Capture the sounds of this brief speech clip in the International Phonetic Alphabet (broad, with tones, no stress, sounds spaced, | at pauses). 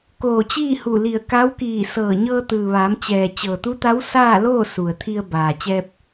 k oː˧˩ t͡ɕ iː˥˨ h u˧˩ l i˧˩ ə̯ k a˧˥ w k iː˧˩ s ɤː˧˩ ɲ ɤː˧ t̪ ɯː˩ ʋ aː˩˧ m t͡ɕ ɛː˩ t͡ɕ ɤː˩ t̪ u˧˥ t̪ a˧˥ w s aː˥˨ l oː˥˨ s u˩ ə̯ t̪ʰ i˧ ə̯ b aː˩ t͡ɕ ɛː˧ p̚